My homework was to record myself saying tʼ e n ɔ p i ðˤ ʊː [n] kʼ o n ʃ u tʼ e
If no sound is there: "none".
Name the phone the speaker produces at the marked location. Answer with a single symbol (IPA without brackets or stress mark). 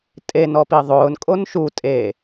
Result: n